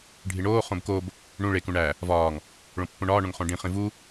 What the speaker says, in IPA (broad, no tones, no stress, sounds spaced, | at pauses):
ɖʱ i ɳ oː χ õ b k o b | ɳ ũ ɭ e k ũ ɳ æ | v ɒː ŋ | ɭ õ pː õ ɳ ɒː ɳ õ ŋ χ õ ɖ ĩ χ ĩ v u